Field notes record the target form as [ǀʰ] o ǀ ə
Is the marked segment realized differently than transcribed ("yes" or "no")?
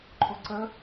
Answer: yes